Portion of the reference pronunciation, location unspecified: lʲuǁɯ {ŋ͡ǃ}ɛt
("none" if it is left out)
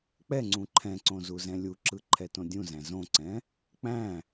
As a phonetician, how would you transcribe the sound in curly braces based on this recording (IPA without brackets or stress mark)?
ǃʰ